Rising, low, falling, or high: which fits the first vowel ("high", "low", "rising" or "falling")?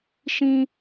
high